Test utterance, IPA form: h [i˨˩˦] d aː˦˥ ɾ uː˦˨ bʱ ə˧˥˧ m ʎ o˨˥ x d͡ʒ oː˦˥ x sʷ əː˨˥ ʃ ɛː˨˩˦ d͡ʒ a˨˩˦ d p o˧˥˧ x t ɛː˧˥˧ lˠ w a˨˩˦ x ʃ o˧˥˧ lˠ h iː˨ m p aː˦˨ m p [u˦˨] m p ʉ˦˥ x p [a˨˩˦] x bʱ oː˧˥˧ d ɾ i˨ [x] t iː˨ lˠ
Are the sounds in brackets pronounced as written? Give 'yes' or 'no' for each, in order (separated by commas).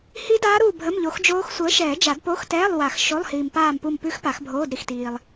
no, yes, yes, yes